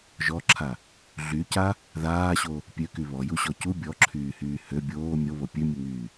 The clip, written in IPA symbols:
ʒ ɔ ǁʰ a | ɮ y c a | ð aː ɕ o | pʲ ø k y β ɔ j u ɕ ɔ c u bʲ ɔ ǁʰ yː h yː h ø bʲ oː mʲ o β o pʲ ø mʲ u ŋ yː

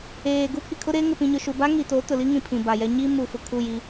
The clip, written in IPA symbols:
eː˨ ɡ u˦ pʰ i˨ kʰ ʊ˦ ɾ eː˦ ŋ ɪ˨ p ĩ˨ ɲ ʊ˨ ʃ u˨ b a˦ ŋ iː˨ t o˨˦ t ʊ˨ l i˦ ŋ ĩ˨ pʰ ĩ˨ b a˨ j ɛ˦ ɲ iː˦ m u˨ f ʊ˨ kʰ u˦˨ j iː˦

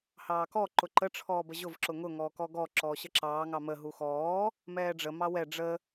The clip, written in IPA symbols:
h ɑː k ɔ ǃ ʊ ǃ ə ʈ͡ʂʰ ɔː b ə ʑ ʊ v ǁ ʊ ŋ ʊ ŋ ɔː k ɔ ɡ ɔ ǁ ɔː ɕ ə ǁ ɑː ŋ ɑ m ə ɦ u x ɔː | m ɛː ɖ͡ʐ ə m ɑ w ɛ ɖ͡ʐ ə

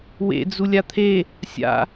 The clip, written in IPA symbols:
w ḛ d͡z u lʲ a t̪ʰ e | sʲ a̰

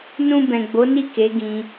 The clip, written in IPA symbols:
n ũ˨ b ɛ̃˨ ɡ͡b o˨˦ n i˦˨ k e˨˦ ɡ ĩ˧

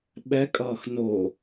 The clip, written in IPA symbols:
ɓ ɛ kʼ ʌː x n o

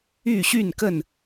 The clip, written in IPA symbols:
y˥˨ ɕ y˥˨ n k ə˥˨ n

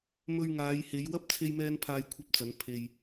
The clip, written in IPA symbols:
m ɵ˧ ɥ ŋ aː˨˧ j h e˨˧ j w ɐ˥ p̚ t͡sʰ e˥ j m ɛː˥ n pʰ aː˧ j kʷʰ ɐ˥ p̚ t͡s ɐ˨˥ n pʰ e˨ j

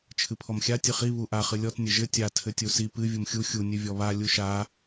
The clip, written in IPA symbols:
t͡ʃʰ ɨ pʰ ɔ m xʲ a tʲ ɨ χ i β u ʔ a χ ɨ lʲ ɔ t nʲ ɘ ʒ ɘ tʲ a tʰ ɘ tʲ u s i p ɨ vʲ u m xʲ u xʲ u nʲ ɨ vʲ ɔ β a lʲ u ʃ a

